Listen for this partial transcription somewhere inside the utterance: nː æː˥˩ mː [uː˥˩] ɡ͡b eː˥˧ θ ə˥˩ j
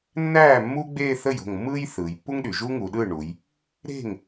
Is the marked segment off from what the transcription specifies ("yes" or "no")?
yes